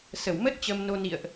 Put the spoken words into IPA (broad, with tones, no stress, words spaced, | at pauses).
sə˧˩w mə˦˥t̚ t͡ɕə˧mno˧nḭ˧˨ə̯ʔ